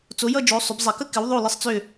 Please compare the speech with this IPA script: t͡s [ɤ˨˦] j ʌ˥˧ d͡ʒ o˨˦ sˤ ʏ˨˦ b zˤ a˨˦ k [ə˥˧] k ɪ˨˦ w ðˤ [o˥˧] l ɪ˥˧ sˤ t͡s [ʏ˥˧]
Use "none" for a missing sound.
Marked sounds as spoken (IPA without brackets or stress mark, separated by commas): o˨˦, ə˥˧, o˥˧, ʏ˥˧